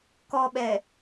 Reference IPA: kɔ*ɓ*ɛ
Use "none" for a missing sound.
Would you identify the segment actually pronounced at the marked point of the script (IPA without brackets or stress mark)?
ɓ